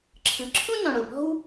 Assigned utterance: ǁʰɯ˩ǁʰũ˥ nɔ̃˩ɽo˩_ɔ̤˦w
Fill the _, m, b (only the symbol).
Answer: b